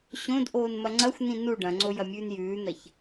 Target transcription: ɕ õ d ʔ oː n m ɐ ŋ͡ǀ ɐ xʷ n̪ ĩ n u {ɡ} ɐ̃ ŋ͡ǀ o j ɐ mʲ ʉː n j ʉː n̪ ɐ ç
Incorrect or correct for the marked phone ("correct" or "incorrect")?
incorrect